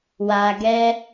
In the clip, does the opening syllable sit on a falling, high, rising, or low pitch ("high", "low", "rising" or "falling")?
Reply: low